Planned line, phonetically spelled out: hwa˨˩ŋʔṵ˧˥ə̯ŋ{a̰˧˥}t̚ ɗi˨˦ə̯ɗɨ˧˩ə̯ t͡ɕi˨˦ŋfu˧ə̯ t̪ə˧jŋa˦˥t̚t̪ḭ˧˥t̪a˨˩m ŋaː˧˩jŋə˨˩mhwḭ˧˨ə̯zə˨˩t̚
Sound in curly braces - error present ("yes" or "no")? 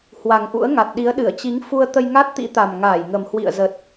yes